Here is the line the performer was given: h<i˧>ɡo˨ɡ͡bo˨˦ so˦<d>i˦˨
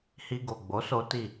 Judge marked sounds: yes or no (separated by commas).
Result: yes, no